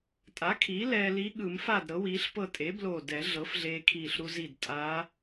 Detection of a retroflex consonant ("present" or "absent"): absent